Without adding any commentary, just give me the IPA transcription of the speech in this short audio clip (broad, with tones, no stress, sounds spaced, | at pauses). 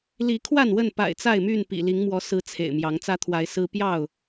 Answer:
l i˨˦ kʰ w a˥˨ n w ə˥˨ n p a̰˨˩ ɪ̯ t͡s a˥˨ ɪ̯ m y˥˨ n p ḭ˨˩ l i˨˦ ŋ m w ɔ˨˦ s ɹ̩˦ t͡sʰ ḛ˨˩ ɪ̯ m j ɑ˨˦ ŋ t͡s ä˦ t̪ʰ w a˨˦ ɪ̯ s ɹ̩˦ p j ɑ˥˨ ʊ̯